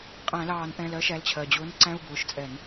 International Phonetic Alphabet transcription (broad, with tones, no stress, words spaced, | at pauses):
qʼæ̃˧˩˧lɑː˧˩˧nʔɛ̃˩˧˩lɜ˨˥ ʃæ˩˧˩lt͡ɕʰɜ˩d͡ʑʊː˨˥n ǀæ̃˧˥˧u̯bʊː˩˧˩ʃt͡sʼɛ˧˩˧n